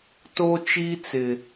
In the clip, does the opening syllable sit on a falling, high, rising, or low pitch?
high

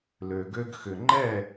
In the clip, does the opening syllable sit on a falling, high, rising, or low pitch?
low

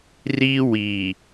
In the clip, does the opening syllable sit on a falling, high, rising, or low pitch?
high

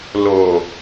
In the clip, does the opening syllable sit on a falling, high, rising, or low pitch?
low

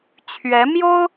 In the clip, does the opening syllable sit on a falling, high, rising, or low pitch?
rising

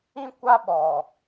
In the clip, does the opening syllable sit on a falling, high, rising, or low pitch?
high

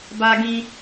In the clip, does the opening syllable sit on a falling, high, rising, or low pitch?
high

